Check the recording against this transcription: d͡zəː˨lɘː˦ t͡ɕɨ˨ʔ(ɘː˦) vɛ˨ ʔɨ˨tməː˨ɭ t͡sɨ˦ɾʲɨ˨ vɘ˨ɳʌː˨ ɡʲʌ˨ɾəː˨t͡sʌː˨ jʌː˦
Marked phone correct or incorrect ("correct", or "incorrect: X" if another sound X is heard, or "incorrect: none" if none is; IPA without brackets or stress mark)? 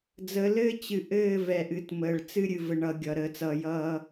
incorrect: ɘː˦˨